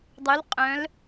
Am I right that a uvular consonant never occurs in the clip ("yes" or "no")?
no